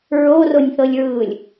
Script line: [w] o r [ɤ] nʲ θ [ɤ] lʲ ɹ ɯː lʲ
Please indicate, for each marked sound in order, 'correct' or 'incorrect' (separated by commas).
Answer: incorrect, incorrect, correct